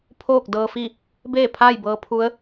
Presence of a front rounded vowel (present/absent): absent